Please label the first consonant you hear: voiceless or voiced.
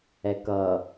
voiceless